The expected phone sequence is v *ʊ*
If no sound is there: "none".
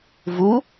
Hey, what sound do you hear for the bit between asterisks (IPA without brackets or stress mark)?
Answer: u